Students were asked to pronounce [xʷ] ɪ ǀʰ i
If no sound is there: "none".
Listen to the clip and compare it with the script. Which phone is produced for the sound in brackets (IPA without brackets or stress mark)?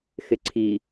x